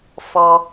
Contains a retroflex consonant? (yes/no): no